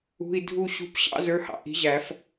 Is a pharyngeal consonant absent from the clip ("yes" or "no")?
yes